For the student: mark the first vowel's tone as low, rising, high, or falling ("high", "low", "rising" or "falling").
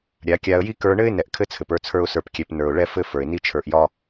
rising